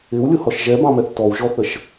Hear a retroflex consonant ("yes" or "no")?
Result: no